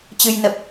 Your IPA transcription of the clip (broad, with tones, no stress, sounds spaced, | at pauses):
t͡ɕ ɨ˧ j n ə˨˩ p̚